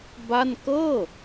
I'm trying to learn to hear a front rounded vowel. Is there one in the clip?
no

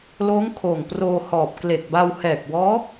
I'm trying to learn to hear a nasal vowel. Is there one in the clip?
no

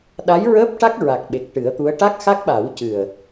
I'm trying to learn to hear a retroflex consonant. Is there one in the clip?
yes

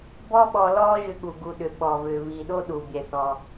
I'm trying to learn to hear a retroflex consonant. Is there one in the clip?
no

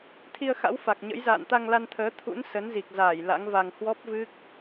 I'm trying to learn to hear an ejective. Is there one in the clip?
no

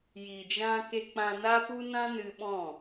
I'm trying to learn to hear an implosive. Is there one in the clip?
yes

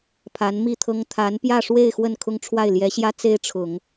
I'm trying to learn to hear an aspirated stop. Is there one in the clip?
yes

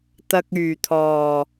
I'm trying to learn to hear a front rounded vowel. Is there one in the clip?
yes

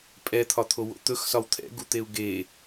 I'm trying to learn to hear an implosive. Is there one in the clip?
no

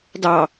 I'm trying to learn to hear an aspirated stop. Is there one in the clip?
no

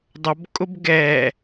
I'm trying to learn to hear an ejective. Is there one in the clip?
yes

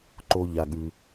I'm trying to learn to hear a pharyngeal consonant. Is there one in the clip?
no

